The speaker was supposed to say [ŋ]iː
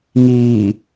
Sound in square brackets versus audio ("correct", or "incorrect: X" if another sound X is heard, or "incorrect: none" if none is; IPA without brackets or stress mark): correct